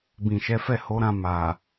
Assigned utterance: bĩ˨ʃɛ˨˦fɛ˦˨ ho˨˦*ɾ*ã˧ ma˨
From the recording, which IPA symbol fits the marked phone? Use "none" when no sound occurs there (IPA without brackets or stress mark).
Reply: ɾ